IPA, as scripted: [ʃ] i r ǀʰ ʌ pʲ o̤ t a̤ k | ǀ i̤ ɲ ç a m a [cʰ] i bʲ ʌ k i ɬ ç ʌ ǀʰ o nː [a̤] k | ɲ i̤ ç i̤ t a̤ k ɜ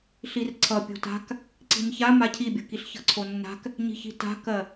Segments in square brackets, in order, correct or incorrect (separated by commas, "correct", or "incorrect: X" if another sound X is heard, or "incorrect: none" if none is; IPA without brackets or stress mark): incorrect: ɬ, correct, correct